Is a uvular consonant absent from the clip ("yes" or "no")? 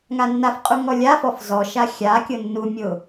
no